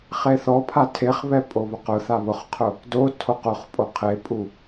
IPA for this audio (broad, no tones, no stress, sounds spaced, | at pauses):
χ e θ ɔ pʰ a tʰ e χ β ɛ pʼ o β ʊ q ʊ θ a β ʊ χ qʰ ʊ | d o tʰ o q ʊ χ pʼ o qʰ e pʼ u